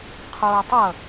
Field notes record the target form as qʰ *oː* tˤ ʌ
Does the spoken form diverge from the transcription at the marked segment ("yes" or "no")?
no